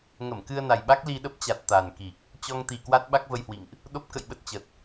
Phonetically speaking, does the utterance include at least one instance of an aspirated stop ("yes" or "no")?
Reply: no